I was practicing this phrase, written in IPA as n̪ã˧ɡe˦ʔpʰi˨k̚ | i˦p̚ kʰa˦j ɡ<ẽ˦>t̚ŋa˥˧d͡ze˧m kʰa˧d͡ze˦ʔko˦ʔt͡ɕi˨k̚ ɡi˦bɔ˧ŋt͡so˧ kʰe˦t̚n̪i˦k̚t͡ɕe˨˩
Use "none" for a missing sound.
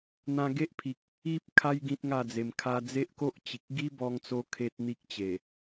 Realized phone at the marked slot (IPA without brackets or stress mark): ĩ˦